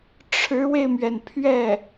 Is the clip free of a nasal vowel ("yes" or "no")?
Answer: yes